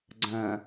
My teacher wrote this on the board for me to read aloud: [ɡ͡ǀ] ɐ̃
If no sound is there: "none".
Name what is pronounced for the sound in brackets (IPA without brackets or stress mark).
ɡ͡ǀ